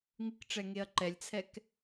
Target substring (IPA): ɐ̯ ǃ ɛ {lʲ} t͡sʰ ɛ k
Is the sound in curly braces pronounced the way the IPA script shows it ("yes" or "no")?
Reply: yes